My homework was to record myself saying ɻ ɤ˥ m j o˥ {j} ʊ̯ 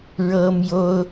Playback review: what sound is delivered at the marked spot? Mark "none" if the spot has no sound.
none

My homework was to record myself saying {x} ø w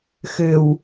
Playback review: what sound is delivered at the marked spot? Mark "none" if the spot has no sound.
x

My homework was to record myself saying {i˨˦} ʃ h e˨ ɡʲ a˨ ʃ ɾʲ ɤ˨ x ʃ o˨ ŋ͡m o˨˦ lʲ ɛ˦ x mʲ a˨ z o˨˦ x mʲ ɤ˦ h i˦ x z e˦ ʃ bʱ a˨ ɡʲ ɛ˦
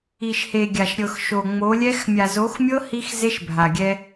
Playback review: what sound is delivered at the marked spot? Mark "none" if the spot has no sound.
i˨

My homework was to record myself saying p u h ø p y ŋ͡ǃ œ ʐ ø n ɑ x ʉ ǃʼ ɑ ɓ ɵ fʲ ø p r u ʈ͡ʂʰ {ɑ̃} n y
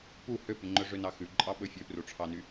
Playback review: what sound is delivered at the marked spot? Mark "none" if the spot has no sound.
ɑ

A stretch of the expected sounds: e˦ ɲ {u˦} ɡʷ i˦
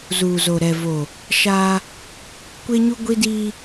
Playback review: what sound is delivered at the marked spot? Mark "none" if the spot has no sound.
u˦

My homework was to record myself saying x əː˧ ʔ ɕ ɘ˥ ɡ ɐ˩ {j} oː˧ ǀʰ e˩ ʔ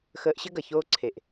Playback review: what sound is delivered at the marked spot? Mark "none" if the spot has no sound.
ç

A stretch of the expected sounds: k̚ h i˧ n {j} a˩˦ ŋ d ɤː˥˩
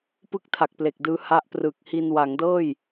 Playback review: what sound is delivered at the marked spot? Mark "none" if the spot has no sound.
w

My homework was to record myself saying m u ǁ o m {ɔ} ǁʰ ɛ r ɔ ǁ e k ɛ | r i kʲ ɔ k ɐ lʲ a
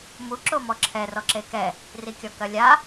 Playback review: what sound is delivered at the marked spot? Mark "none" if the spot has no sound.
ɔ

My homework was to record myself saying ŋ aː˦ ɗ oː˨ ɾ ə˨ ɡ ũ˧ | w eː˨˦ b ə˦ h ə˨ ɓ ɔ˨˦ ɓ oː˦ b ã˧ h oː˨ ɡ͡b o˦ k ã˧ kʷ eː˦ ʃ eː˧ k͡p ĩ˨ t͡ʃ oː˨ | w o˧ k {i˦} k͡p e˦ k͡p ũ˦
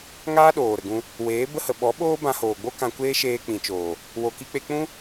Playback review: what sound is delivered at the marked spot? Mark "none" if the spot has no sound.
i˦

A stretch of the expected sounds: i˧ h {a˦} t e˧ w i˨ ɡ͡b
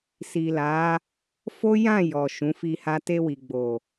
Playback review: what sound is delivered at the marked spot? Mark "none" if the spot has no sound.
a˦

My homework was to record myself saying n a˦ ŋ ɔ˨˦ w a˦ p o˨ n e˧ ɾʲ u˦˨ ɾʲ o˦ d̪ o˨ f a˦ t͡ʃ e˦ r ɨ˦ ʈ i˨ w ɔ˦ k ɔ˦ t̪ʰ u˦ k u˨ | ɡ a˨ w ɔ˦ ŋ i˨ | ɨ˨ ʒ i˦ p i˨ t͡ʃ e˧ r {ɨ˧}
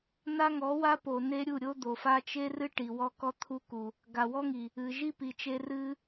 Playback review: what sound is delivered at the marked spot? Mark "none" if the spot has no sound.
ɨ˧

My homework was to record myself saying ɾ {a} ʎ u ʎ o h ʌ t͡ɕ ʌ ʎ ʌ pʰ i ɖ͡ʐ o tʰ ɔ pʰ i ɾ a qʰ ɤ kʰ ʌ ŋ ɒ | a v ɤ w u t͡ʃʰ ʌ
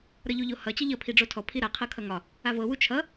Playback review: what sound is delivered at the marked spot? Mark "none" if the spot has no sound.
ʌ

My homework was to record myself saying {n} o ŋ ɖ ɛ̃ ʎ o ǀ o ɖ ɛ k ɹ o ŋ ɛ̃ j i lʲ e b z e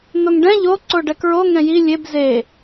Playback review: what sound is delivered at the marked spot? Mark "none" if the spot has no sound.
n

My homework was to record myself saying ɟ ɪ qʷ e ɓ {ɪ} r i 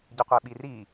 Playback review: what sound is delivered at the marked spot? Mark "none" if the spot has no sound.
i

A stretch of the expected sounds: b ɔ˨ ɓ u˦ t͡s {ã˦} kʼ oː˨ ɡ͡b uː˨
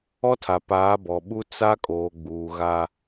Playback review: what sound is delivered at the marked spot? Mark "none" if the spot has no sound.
a˦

